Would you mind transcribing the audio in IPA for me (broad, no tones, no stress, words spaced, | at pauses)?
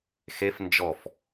xef nd͡ʒɔf